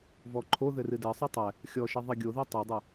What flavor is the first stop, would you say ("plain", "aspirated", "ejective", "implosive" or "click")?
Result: click